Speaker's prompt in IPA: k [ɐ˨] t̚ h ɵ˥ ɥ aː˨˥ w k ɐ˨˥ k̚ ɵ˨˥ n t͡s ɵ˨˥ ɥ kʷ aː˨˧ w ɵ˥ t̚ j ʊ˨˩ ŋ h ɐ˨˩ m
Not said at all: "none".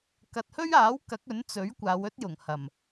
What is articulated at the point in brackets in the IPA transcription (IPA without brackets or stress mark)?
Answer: ɐ˨